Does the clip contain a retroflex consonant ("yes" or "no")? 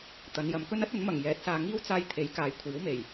no